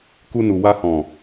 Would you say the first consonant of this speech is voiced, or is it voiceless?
voiceless